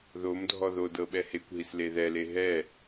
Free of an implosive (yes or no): no